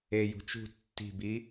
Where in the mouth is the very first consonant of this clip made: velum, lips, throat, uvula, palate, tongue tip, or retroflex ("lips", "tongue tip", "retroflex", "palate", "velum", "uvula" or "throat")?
palate